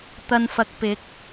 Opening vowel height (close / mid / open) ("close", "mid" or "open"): open